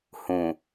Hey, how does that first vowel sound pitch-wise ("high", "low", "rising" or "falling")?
low